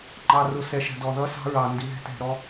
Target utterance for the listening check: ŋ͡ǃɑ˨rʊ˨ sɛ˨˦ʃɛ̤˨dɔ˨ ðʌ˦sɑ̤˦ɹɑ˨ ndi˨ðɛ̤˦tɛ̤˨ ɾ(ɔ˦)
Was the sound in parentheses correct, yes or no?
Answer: yes